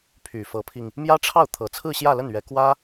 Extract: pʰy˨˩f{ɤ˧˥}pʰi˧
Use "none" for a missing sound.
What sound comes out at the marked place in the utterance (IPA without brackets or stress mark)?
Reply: ɤ˧˥